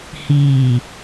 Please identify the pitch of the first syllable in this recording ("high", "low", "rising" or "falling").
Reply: low